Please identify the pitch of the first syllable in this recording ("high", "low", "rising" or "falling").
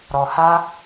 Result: low